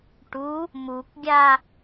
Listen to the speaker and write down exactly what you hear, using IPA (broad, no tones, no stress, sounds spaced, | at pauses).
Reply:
ʈ u | m u k ɡʲ a